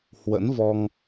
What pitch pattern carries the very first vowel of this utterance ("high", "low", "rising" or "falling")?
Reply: rising